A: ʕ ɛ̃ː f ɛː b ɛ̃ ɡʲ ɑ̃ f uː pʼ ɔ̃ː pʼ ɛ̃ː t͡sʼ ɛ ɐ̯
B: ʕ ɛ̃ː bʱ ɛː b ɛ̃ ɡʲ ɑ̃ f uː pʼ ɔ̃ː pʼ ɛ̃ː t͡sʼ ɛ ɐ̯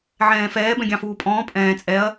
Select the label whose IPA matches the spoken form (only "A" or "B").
A